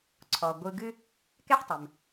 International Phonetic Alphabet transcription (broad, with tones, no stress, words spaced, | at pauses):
ǀʰɔ˩ ɡʷɯ˧ɡɨ˥ | kɛ˥ħtˤʏ˩m